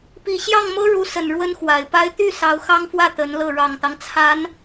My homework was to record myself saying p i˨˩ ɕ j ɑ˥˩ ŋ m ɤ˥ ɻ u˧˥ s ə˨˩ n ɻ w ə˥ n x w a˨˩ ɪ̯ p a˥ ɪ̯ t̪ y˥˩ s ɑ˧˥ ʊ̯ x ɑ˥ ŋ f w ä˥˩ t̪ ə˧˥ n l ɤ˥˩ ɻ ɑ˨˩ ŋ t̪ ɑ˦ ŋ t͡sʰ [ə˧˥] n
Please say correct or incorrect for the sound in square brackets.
incorrect